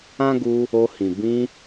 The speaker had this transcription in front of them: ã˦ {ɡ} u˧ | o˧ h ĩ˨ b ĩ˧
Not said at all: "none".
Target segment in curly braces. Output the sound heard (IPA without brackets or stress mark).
ɡ